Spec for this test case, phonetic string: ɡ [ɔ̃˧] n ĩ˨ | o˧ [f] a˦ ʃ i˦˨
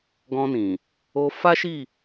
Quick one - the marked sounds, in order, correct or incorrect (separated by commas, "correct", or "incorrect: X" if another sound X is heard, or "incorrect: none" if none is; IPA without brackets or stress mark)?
correct, correct